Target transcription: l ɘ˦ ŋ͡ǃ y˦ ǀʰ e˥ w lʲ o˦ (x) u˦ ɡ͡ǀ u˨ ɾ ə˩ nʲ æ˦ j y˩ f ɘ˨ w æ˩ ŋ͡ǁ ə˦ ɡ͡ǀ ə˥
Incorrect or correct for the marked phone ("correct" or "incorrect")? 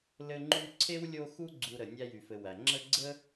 correct